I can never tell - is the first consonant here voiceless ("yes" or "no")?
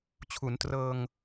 yes